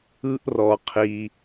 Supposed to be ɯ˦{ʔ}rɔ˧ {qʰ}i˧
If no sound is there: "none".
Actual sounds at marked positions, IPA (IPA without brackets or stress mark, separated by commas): ʔ, qʰ